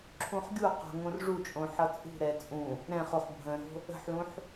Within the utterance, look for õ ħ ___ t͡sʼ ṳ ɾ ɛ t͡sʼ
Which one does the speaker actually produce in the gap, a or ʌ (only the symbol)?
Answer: ʌ